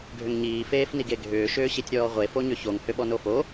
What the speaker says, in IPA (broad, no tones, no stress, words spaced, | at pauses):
ɡʱʏŋɲiː feːfniɡeɡʱʏː ʃʏːɕitʲɾʲɔːʁʷe foɲʏçoŋ hʏɓɔnofo